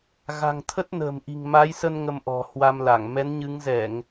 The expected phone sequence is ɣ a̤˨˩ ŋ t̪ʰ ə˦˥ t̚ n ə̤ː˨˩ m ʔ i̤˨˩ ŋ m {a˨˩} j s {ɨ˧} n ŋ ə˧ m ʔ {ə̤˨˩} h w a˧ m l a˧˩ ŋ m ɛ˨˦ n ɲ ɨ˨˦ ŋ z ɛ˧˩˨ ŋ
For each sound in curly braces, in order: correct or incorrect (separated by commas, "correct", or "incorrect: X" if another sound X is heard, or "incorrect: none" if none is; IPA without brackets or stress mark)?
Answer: incorrect: a˨˦, incorrect: ə˧, incorrect: ɔ̤˨˩